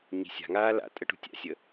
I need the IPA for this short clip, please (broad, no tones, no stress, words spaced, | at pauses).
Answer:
ɲi̤sʲa̤ŋaː la̰tʼə ʈṳtʲa̰sʲə